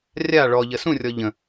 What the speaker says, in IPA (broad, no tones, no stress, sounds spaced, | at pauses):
rʲ a ɭ ɔ ʎ ə s ũ rʲ ɔ ʎ ə̃